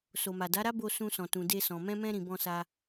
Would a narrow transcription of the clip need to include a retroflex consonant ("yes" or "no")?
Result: no